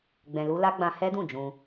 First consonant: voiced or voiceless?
voiced